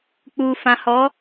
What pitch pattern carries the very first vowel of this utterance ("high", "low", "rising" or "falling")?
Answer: low